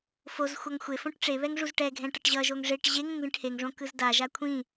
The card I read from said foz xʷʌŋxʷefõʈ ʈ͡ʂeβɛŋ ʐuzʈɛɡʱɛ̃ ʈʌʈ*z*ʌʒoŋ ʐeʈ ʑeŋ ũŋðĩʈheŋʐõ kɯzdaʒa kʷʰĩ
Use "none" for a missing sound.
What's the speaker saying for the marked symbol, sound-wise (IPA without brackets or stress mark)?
ʑ